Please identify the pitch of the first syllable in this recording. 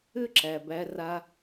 falling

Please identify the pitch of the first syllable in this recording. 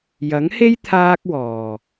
rising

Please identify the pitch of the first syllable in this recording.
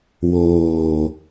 low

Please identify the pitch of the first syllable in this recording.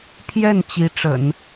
falling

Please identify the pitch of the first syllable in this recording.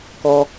low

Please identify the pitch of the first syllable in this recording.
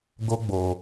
high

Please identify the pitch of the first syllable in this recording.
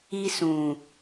high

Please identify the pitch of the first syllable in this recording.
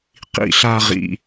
falling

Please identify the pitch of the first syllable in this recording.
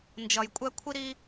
low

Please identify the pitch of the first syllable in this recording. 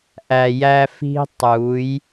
low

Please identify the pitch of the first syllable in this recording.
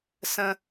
high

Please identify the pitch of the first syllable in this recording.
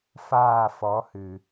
falling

